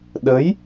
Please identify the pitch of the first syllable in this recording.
rising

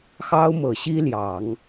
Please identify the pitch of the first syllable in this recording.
high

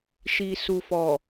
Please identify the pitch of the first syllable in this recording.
low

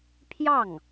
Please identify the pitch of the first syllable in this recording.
falling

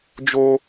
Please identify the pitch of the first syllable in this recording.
high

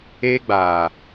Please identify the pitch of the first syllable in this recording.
high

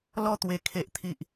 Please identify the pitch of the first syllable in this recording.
high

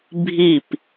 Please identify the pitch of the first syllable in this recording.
falling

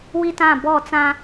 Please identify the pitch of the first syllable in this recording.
high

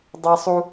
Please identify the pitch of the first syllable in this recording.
high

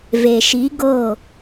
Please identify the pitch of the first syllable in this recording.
low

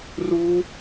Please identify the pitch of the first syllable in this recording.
high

